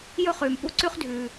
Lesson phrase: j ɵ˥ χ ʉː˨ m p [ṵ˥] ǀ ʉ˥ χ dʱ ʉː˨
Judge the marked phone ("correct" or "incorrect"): correct